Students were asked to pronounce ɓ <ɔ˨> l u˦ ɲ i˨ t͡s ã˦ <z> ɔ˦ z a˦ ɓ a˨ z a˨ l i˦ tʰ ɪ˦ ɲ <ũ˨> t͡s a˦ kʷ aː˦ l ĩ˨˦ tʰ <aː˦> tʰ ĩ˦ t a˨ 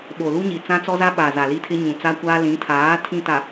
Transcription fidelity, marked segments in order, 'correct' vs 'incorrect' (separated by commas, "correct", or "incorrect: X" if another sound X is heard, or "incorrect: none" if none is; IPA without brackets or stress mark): incorrect: o˨, incorrect: t͡s, correct, incorrect: aː˨˦